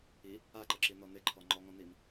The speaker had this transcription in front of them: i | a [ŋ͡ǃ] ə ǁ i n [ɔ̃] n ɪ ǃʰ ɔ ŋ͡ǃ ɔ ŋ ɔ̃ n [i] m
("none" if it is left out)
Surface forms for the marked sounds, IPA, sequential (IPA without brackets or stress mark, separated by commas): ǃ, ɔ, i